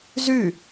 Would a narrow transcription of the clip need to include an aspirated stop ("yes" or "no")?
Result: no